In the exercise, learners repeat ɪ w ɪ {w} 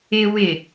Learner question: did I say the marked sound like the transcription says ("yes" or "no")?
no